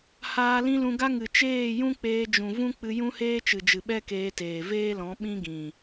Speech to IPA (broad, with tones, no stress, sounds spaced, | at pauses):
h aː˧ l ĩ˦ l ũ˧ ɡ a˦ ŋ ɨ˨ t͡ʃ eː˦˨ j ũ˦ k͡p eː˧ d͡ʒ ũ˨ v ũ˦ k͡p ɨ˧ j ũ˦ h eː˦ t͡ʃ ɨ˨ d͡ʒ ɨ˨ ɓ ɛ˦ k eː˧ t eː˨ v eː˦ l ɔ̃˨˦ ɓ ĩ˦ ɡ ĩ˨